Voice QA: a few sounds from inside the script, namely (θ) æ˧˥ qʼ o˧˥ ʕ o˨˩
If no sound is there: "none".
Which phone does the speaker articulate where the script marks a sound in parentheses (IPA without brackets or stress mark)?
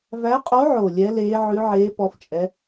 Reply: v